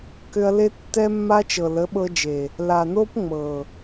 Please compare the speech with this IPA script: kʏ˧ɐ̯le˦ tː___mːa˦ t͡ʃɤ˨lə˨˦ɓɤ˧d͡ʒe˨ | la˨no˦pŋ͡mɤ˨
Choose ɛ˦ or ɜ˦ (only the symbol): ɛ˦